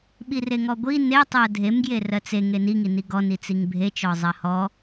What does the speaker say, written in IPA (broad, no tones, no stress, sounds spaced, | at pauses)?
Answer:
ɓ i r e ŋ ɔ ɡʷ i n e tˤ ɜ dʱ e m ɡ j e r ɜ t͡s e ŋ e n i ŋ i n i ɡ ɔ n i t͡s i ŋ bʱ e t͡ʃ ɔ zˤ ɜ h ɔ